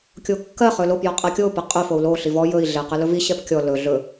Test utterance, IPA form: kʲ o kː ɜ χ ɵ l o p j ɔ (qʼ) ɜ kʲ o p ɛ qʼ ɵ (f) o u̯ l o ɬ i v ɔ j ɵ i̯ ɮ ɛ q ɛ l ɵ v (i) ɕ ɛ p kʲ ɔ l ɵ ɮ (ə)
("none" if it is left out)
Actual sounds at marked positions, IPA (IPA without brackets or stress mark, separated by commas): qʼ, f, i, ɵ